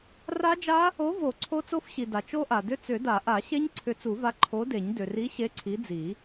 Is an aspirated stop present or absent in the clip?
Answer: present